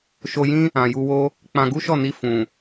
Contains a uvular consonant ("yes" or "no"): no